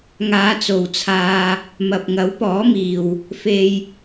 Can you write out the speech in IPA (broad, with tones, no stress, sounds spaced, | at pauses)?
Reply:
ŋ aː˨˧ t͡s o˨ w t͡sʰ aː˧ | m ɐ˨ p̚ ŋ ɐ˨˥ w p ɔː˨˥ m iː˨ w | f e˧ j